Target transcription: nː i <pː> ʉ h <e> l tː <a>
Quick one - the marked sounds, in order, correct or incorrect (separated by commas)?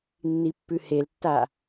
correct, correct, correct